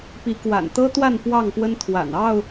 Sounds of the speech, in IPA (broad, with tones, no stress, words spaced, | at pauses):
pi˨˦kwa̰˨˩nt̪ɤ˦t̪wa˥˨n pwɑ˥˨ŋpwə˦n t̪ʰwa̰˨˩nɑ˥˨ʊ̯